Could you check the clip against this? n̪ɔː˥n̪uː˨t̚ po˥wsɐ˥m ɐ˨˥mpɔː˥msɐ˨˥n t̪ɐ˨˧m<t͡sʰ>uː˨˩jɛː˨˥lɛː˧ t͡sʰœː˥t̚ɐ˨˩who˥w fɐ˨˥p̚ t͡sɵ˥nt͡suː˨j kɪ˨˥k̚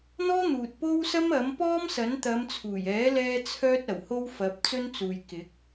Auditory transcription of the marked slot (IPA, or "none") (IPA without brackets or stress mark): t͡sʰ